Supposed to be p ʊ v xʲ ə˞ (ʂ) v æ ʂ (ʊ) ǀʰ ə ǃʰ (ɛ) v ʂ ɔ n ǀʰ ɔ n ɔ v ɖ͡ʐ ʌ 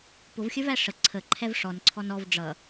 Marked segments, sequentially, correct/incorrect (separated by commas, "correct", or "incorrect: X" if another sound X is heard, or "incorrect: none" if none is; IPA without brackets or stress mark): incorrect: none, incorrect: ə, correct